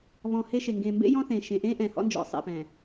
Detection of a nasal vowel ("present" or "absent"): present